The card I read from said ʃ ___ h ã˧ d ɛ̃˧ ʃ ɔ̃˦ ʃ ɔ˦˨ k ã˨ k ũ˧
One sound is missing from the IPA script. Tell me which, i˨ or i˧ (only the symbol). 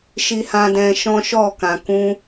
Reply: i˧